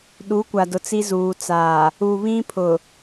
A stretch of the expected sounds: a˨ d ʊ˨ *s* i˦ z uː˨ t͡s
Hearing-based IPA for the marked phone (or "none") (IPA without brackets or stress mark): t͡s